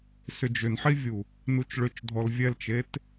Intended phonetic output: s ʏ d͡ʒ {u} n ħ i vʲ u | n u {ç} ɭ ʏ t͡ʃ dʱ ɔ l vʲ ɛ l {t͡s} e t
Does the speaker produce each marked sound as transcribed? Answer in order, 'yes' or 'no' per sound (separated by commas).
no, no, no